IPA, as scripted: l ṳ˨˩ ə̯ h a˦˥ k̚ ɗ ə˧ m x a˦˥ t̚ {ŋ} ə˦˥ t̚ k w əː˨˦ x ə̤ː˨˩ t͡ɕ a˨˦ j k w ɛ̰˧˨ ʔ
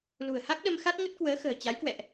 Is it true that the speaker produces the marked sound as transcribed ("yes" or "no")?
yes